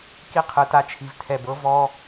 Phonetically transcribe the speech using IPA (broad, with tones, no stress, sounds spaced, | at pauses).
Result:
k i˦˨ qʰ ɯ˨ t a˧ t͡ʃʰ i˨ v tʰ ɛ˨ b ɤ˦ v ɔ˦